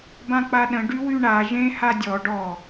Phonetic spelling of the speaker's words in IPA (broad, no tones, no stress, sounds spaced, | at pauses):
b ã k͡p a ɗ ə̃ ɖ y w y ɳ a ʒ ẽ h a dʲ ɔ ɖ ɔ